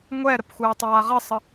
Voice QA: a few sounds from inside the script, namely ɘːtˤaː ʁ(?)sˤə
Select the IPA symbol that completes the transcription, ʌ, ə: ə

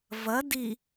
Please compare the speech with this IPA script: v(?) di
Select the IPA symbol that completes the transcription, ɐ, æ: ɐ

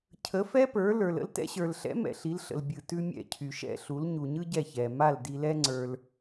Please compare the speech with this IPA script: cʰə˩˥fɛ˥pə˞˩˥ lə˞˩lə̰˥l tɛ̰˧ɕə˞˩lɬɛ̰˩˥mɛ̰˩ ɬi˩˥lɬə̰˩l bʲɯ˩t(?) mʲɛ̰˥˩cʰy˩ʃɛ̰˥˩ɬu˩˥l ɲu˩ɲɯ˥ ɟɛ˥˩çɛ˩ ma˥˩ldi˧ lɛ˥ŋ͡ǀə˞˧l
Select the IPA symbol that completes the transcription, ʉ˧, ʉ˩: ʉ˧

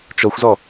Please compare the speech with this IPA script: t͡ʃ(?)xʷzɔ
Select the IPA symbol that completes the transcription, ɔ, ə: ɔ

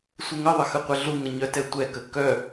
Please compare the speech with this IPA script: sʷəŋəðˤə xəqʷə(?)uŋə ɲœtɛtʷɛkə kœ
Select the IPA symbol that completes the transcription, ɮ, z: ɮ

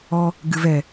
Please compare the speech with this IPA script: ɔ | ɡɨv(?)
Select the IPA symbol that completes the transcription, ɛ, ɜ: ɛ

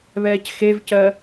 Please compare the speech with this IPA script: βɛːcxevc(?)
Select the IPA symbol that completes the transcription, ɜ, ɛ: ɜ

